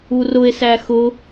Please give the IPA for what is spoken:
u r ʊ e̯ s æ x ʊ

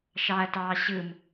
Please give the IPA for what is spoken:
ʃ ɑ ɐ̯ t ɑː ɕ ɯ m

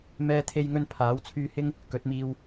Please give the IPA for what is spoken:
m ɛː˥ t̪ʰ e˥ j ŋ ɵ˥ n pʰ aː˨˥ w t͡sʰ yː˧ h ɪ˥ ŋ | k ɵ˨˥ t̚ m iː˧ w

